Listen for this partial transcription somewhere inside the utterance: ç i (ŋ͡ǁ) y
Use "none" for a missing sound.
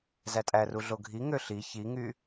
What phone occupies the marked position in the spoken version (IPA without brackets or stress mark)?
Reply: ŋ